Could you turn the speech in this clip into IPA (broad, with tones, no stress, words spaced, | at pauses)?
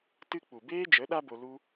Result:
tɨ˧ k͡pu˨ beː˦d͡ʒə˨˦ ɗa˦bo˧ lu˦